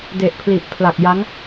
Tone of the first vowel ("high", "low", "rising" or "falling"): low